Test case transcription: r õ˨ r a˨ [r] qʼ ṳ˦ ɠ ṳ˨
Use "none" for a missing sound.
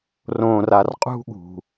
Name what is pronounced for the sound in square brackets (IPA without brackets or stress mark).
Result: r